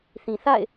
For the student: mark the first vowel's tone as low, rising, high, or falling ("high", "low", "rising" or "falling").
low